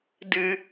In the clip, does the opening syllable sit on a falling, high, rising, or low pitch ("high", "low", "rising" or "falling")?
low